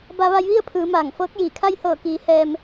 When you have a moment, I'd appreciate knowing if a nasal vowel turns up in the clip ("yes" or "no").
no